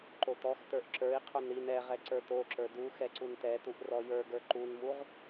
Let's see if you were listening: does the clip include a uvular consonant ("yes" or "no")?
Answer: yes